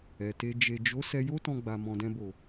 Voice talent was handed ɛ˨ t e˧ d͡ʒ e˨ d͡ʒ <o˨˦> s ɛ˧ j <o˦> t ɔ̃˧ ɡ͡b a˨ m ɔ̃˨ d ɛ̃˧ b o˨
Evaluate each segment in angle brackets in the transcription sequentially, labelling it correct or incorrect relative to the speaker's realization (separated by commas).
correct, correct